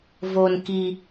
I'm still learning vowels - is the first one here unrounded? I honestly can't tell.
no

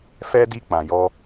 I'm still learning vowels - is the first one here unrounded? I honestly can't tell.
yes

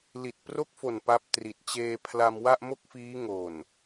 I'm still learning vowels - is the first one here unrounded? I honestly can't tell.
yes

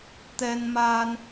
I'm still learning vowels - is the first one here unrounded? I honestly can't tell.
yes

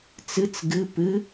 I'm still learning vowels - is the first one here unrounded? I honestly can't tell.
yes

